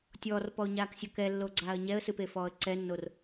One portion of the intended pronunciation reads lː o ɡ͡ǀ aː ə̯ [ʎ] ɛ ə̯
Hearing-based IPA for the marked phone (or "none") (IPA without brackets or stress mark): ɲ